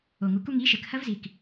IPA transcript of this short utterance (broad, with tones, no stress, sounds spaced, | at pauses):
o˨˩ ŋ u˨˥ k u˦ ŋ i˨˥ ʃ ɘ˨˩ k h ɐ˦ v z i˨˩ k